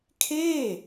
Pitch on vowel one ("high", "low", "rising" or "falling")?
falling